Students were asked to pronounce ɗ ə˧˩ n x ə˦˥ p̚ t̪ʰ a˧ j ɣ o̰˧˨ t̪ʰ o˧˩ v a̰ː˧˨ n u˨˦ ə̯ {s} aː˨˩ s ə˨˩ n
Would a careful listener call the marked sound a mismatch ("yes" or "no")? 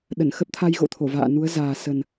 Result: yes